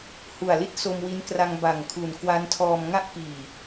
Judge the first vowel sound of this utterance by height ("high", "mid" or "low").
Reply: high